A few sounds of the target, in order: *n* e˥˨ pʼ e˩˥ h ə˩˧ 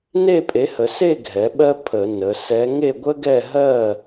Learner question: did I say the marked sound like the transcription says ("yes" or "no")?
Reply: yes